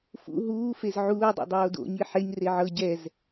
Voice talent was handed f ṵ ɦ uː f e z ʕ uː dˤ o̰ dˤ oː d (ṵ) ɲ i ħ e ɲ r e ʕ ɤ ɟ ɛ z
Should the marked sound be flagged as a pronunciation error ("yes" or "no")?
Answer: yes